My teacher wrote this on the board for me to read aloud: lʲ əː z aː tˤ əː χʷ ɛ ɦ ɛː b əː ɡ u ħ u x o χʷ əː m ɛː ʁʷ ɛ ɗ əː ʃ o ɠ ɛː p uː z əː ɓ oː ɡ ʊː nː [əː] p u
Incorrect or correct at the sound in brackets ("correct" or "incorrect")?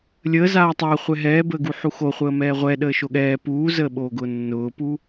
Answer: incorrect